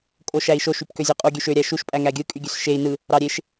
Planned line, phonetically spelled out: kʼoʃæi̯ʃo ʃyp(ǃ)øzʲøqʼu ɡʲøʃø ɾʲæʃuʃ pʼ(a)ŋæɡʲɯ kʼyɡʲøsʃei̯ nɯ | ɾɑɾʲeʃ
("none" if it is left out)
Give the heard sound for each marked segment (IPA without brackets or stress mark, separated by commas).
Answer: k, æ